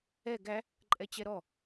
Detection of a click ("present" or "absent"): present